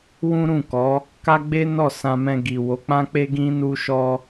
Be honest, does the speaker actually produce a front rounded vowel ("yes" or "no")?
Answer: no